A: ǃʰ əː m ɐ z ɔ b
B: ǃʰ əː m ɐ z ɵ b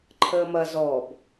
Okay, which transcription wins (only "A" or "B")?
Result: A